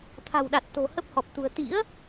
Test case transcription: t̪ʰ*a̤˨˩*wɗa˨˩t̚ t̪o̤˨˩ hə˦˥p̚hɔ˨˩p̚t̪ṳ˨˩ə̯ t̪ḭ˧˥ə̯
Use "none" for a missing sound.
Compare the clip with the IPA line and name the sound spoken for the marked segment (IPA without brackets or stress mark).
a̤˨˩